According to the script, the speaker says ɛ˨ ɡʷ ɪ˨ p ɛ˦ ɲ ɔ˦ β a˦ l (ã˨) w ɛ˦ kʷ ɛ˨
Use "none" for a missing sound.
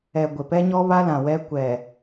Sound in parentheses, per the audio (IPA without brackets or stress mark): ã˨